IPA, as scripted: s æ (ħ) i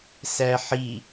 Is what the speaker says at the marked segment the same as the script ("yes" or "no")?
yes